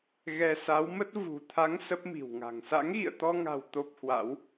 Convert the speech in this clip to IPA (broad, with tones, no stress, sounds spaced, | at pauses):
ɣ ɛ˧ s a˨˦ w m ə˦˥ t̚ v ṳ˨˩ t̪ʰ a˨˦ ŋ s ə˦˥ p̚ m i̤˨˩ w ŋ a̤˨˩ ŋ s a̰˧˥ ŋ ɣ ḭ˧˨ ə̯ t̪ ɔ˧ ŋ a̤˨˩ w t̪ o˦˥ p̚ h w a̰˧˥ w